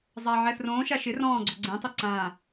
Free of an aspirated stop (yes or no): yes